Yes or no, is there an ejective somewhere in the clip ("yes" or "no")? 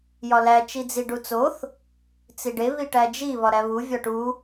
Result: no